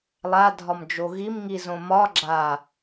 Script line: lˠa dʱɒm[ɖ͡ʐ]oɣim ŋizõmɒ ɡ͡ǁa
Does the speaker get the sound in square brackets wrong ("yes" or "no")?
yes